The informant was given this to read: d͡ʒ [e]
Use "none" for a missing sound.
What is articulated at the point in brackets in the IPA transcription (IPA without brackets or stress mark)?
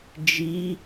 i